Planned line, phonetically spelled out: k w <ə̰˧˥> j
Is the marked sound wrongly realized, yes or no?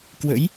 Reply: no